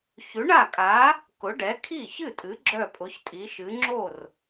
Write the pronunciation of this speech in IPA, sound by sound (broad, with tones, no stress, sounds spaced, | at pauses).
ç ʉ˨˥ ɳ a˥˩ kʼ a˨˥ | k ʊ˨˥ ɖ ɛ˨˥ kʰ i˥˩ ç ɨ˥˩ tʼ ɨ˨˥ ɡ͡ǁ œ˥˩ pʼ ʊ˨˥ ç tʼ i˨˥ ʃ ɨ˨˥ ŋ͡ǁ o˥˩ r